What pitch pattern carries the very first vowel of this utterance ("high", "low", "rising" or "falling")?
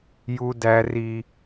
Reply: high